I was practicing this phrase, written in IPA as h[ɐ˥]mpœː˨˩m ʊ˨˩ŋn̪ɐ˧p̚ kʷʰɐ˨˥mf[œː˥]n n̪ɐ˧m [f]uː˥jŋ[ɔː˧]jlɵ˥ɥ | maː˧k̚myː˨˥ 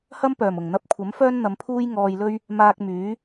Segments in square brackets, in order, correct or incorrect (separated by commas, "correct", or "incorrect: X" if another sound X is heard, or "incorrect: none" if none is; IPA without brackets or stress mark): correct, correct, incorrect: pʰ, correct